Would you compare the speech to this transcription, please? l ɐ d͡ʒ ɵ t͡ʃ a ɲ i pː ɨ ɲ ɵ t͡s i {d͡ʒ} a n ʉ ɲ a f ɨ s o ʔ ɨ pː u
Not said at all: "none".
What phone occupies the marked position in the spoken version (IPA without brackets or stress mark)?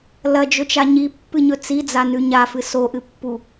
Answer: d͡z